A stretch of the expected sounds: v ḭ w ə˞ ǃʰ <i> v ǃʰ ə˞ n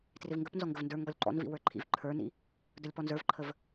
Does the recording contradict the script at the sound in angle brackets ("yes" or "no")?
yes